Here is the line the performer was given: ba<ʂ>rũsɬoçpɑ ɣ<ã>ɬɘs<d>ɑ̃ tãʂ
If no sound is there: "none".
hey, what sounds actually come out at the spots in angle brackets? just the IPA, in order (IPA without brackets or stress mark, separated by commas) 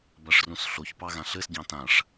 ʂ, ã, ɟ